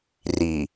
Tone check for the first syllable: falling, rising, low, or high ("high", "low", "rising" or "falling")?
low